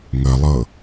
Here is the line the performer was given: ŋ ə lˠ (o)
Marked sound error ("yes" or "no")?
yes